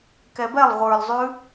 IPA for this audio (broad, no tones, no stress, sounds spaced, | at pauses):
k ɛ b ɛ lˠ ʁʷ ə˞ l zˤ ʉ